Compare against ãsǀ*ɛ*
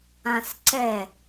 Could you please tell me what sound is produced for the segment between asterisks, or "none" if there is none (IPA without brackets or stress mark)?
ɛ